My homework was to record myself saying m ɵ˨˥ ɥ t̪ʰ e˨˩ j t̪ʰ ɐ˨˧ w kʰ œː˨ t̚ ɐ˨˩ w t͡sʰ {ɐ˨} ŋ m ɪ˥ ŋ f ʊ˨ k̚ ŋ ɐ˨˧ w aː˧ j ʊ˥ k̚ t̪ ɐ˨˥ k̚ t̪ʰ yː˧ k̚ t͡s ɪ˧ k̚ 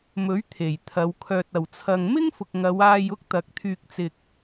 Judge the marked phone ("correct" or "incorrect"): correct